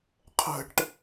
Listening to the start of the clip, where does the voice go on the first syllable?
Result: falling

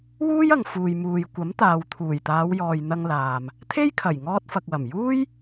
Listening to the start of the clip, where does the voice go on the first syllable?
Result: high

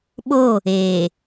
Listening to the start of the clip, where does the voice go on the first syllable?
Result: falling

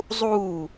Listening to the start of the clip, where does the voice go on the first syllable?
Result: falling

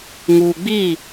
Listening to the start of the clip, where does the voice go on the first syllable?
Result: low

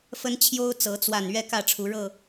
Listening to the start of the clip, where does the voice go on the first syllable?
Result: high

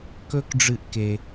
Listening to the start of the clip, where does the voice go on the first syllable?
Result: high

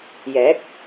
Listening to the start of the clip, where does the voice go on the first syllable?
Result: rising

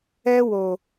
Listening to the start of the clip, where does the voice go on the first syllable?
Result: high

